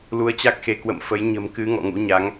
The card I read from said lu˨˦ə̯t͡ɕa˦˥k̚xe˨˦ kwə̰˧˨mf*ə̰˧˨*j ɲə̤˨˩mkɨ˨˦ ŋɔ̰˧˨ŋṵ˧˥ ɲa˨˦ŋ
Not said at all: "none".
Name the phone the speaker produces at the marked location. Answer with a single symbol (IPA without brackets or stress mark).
ə˨˦